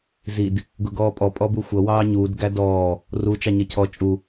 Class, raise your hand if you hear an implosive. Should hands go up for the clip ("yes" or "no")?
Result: no